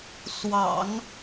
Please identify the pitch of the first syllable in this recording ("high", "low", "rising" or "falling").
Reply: low